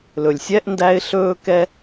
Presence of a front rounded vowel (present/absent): absent